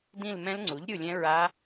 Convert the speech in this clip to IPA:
dĩ˦˨lmɛ̃˦˥lŋ͡ǀu˩˥ʎ ɾʲu˦˨lʲɛ̃˦˥ɹa˦˥

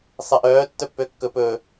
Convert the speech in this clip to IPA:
sˤeʔœː tːœpːøkːɵ pɵ

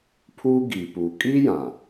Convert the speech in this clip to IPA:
pʰuː˦ɡiː˨puː˨ kʼiː˦ jã˨

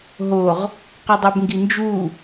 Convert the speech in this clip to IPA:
ɦoʁ | qɐdˤobŋɡind͡ʒu

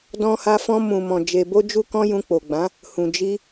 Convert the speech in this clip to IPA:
dɔ̃˧ha˧fɔ̃˧ mũ˨mɔ̃˨ d͡ʒe˨bo˧d͡ʒu˧kɔ̃˧ jũ˧k͡po˨ɡ͡bã˨˦ | hũ˨d͡ʒi˧

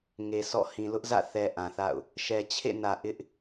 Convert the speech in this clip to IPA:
ŋe˨ sɔ̰˦˨ hĩ˨lʊ˦ʔzä̰˦˨ θɛ˨ ʔã˨θa̰˦˨ʊ̯ | ʃɛ˨t͡ɕʰḛ˦˨nä˨ ʔɪ˦ʔ

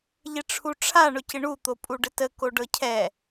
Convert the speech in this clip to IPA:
ʎɪʈ͡ʂʰuʈ͡ʂʰa ɳʊcɪɳu t̪opʼuɖətə koɖɤcʰɛ

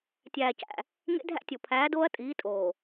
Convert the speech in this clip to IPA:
tʲæː˨cæ̰˨ | ŋḛ˦dʱæ̰˦tʲo˨ pʰæː˨˦doː˦ɐ̯ tʼiː˨˦tʼoː˨

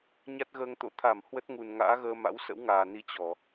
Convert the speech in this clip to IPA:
ɲa˦˥t̚ɣəː˧ŋt̪o̰˧˥ t̪ʰa˧˩m hwə˦˥t̚ŋu˨˩nŋa̰ː˧˥ɣəː˧ ma̰˧˥wsə̰˧˥wŋaː˨˩ni˧ t͡ɕɔ˧˩˨

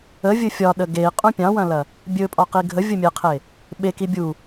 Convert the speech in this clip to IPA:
əvʲɵ fʲɒɗə ɡei̯qʼũ pʲɑ̃wɐ̃lɐ | bʲɵpʼɒqi ɡʱəvʲəmʲeqʰe | ɓeki bʲu

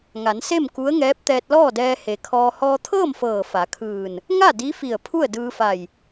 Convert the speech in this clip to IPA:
ŋa˩˧nse˥˨m ku˧˥ə̯ŋɛː˧˥p̚ t̪ɛː˧t̚lɔː˥˨dɛː˧ he˩kʰɔː˧ hɔː˧t̪ʰɤː˥˨m fɤː˧˩fa˩˧kʰɯː˧˩n | ŋa˥˨ di˧˥fi˧˩ə̯ pʰu˥˨ə̯ dɯː˧fa˧˩j

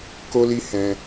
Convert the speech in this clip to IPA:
ko˦li˦ hɛ̃˧

